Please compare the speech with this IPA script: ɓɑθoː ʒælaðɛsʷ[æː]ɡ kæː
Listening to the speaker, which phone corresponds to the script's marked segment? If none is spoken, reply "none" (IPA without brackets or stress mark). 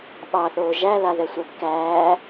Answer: æ